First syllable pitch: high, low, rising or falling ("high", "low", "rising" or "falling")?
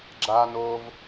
low